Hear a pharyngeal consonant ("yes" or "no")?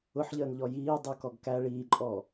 yes